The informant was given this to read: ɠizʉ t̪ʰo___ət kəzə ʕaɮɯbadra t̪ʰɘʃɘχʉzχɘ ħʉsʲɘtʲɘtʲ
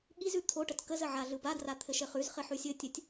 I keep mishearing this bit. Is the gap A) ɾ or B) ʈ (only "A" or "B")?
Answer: B